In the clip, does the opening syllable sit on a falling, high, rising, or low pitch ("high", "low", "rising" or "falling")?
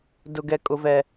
low